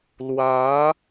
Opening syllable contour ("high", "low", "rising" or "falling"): rising